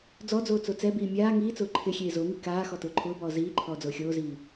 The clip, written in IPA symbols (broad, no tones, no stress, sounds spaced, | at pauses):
d͡z ɔ d͡z oː t͡s o t͡s ɛ b iː mʲ aː ŋ iː t͡s ʊː ǃʰ ɪ xʲ eː z o ŋ i k aː x ɔ t ʊː ǃʰ ʊː b ɔː z iː ǃʰ ɔː d͡z ʊː xʲ oː z iː